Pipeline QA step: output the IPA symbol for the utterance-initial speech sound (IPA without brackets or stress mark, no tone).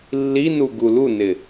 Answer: lː